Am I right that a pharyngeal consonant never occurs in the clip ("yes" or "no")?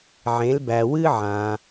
no